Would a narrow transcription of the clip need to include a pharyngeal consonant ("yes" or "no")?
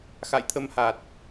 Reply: no